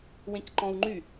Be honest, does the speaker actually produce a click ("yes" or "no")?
yes